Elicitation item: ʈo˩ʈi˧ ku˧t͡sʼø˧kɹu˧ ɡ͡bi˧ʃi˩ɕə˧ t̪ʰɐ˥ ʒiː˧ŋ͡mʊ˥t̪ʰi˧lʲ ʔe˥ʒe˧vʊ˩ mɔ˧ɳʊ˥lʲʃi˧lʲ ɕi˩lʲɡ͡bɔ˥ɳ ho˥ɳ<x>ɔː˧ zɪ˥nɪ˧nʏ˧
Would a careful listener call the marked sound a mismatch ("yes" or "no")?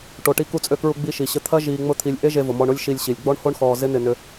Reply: no